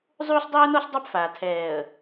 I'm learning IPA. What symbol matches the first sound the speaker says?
zˤ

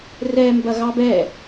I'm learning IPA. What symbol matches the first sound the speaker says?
r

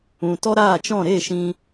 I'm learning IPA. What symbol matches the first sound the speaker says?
ũ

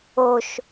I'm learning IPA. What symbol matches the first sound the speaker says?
o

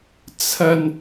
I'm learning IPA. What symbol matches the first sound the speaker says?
t͡sʰ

